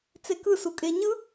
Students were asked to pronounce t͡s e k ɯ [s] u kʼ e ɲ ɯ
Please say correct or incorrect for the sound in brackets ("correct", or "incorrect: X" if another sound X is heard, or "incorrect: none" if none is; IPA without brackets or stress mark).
correct